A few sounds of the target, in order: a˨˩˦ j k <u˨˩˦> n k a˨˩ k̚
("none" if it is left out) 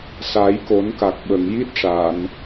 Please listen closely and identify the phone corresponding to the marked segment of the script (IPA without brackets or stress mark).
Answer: o˨˩˦